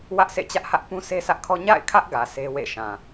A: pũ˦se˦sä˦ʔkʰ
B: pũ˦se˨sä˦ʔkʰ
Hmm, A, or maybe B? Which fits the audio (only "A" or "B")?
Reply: A